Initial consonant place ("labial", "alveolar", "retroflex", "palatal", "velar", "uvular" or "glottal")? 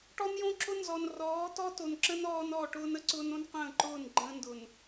retroflex